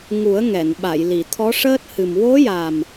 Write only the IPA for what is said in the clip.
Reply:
ŋu˨˩˦ə̯ŋɛ˨˩˨nɓa˨˩˨j li˨˩˨t̪ʰɔ˧˥ʂəː˦˥t̚ hɨ˨˩mwo˧˥ja˨˩m

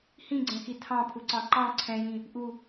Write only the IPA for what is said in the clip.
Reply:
hĩɡ͡ǀɛ̃xi tʰɑ̃pʰuǀɑ̃ ǃɑ̃ ǀʰɛ̃jĩ | ʔu

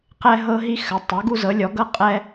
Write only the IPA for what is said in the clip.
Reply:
qɛ˦ɦɤ˦ɦi˦ xə˨˥ tˤɤ˨˥ɡu˦zɤ˨˥lʲɔ˨˥ ɡɤ˦qʼɛ˦

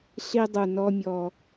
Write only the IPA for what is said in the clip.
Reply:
ɬi˦dˤu˨nɔ˦ mʲɔ˨

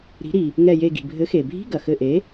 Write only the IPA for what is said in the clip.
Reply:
ɾi̤˩˥ɾi˩ | ŋɛ˧˩je˧˩ɡi̤˩ bʱɘ˩˥xe˩bʱi̤˧˥˧ɡɐ˩ xɘ˧˩ʔe˩˥

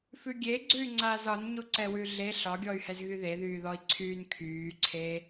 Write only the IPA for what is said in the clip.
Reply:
fʉɡʲeɡ͡ǀʉy̯ ŋ͡ǀaːzɒn ɲuǀɛwʉɮe ɬɒɡʲɔy̯hɛzɣy ðeðyːðɔi̯ǀʰyːn kʰyːǀʰe

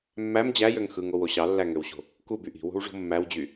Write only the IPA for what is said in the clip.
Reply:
mːæm d͡ʑæjøŋ xɯŋowo ɕɑlːæŋøwɕo̤ | kuby ʔi̤wo̤wʐo̤ mːæwd͡ʑy

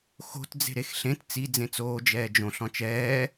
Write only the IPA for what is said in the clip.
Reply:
xo̤t d͡ze̤ɾexɬẽt t͡si d͡zẽt͡soː d͡ʒɛːd͡ʒõɬ ɔ̃t͡ʃɛː

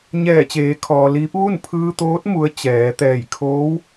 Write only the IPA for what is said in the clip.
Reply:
ɲɛː˧˩t͡ɕeː˩˧kʰɔː˩liː˧˥p̚ ʋu˥˨npʰɯː˧t̪oː˧˥t̚ mu˧˥ə̯t͡ɕɛː˩˧t̪ɛː˧˩j kʰoː˧˥w

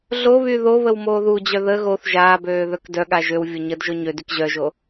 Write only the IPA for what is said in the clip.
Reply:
ɮoβy ðoβəw moːðud͡ʑœ ðə ɣoθ ʒaːbøː ðœkdœɠa ʒøwvʲo ɲədʒo ɲødyk ʑœʒo

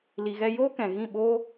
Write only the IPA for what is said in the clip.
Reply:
li˨ɣɛ˧joː˦ kɛ̃˨ɣĩ˦˨ ɓoː˦

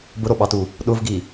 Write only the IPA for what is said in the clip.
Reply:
bʊɾoɓɑtu | ɗʊvɡi

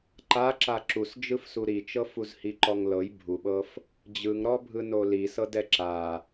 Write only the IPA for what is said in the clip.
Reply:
ǃa ǁaǁus d͡ʒɯfsuɾit͡ʃɤ fuzhiǃɔŋlɤj bʱuɓɤf | d͡ʑɯŋɾɔbʱɯno lisɤdɛ ǁa

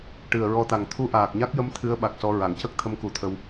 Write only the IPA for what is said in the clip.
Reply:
ʈɨ˨˩ə̯ɹɔ˧t̪a˨˩ŋ t̪ʰu˧˥ʔaː˨˩k̚ɲa˦˥k̚jə˧˥m t̪ʰɨ˧˥ə̯ɓa˨˩k̚sɔ˧ ɹa˨˩˨ŋcə˦˥k̚ t̪ʰə˧˥mku˨˩˦t̪ʰə˧w

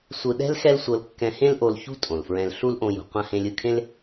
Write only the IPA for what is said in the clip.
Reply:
sʷɯ˧ɗɛ̤˥l xɛ˥lsʷɤ˧l kːɛ̃˧hẽ˥l ʔo˧lçṳ˥ tʼõ˩lfɹɛ̃˧l ɬu˥lʔõ˧jṳ˩ qʷã˧ hẽ˧lʲɯ˧kʰẽ˥l

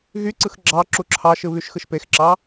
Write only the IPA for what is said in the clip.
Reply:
ɣyǀɯx ɡ͡ǁɑ ǁuǁʰɑʃɯ βyʃxɯʃpexǁɑ

